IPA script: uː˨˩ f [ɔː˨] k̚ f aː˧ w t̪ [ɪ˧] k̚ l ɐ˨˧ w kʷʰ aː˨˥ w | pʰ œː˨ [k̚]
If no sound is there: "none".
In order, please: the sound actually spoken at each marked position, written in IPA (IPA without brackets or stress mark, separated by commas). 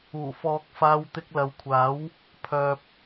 ɔː˨, ɪ˧, p̚